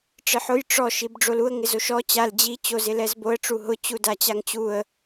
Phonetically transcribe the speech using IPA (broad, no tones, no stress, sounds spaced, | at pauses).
ʈ͡ʂ ɪ ħ ʊ j ʈ͡ʂ ɔ ʃ i b ɖ͡ʐ o l u ə̯ ŋ ɪ z o ʃ ɔ t͡ɕ a l d͡ʑ i t͡ɕ o z ɪ l ɛ z b o ə̯ ʈ͡ʂ u ɦ ʊ t͡ɕ u d a t͡ɕ a ŋ t͡ɕ u ə̯